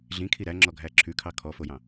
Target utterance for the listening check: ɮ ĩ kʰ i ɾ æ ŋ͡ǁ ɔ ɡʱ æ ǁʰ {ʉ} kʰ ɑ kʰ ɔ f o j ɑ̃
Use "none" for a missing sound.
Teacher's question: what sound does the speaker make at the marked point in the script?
ʉ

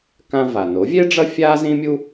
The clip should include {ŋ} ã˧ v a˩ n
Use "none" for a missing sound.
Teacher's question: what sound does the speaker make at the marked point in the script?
k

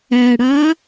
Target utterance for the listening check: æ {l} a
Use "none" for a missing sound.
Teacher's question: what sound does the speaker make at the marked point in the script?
ɽ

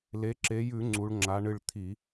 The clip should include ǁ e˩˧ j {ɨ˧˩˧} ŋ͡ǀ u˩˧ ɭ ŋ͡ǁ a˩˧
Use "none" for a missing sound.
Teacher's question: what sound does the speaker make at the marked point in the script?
ʉ˧˩˧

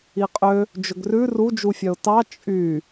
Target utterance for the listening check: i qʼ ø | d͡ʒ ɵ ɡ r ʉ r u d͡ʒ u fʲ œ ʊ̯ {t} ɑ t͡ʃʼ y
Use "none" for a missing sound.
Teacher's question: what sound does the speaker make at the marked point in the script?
t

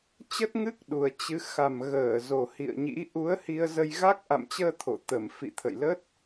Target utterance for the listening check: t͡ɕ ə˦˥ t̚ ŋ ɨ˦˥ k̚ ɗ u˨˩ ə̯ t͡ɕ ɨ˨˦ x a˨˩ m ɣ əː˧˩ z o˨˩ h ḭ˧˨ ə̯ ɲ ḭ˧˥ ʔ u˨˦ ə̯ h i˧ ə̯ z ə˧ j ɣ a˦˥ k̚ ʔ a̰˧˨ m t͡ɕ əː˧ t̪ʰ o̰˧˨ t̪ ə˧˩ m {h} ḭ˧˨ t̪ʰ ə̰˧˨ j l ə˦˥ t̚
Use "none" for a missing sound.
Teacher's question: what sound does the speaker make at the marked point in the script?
f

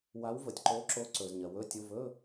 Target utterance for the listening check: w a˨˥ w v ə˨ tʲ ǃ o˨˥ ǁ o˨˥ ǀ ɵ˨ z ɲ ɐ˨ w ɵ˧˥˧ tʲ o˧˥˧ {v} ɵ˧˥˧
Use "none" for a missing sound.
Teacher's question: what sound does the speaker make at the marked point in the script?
v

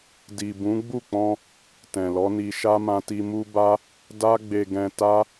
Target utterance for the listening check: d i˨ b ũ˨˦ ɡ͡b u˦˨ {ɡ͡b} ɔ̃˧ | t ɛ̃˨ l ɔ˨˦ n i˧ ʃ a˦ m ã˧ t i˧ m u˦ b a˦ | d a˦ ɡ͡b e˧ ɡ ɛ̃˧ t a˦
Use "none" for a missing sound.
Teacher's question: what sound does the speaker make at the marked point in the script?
k͡p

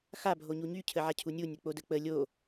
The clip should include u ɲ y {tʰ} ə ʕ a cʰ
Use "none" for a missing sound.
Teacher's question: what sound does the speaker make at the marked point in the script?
cʰ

